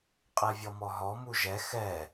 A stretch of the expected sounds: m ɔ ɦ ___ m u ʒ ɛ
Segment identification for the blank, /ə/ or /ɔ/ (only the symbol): ɔ